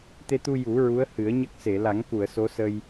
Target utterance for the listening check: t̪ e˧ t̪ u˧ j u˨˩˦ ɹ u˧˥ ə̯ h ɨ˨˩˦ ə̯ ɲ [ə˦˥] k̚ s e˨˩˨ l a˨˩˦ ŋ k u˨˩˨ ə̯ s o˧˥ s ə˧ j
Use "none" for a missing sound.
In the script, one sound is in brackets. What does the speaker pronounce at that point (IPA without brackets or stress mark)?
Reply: ə˦˥